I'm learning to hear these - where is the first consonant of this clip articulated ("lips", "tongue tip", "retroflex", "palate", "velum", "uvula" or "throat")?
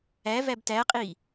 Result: lips